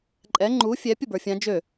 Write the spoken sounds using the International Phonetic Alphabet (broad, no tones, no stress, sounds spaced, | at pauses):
ǃʼ ɛ ŋ͡ǃ u fʲ ɛ pʲ ə b ə˞ fʲ ã d͡ʒ ø